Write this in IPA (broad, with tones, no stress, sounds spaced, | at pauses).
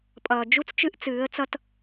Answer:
pʼ ʌː˨ d͡ʒ u˦ t͡s t͡ʃ ɨ˦ ʔ t͡s ɨː˨˦ ə̯ t͡s ʌ˦ t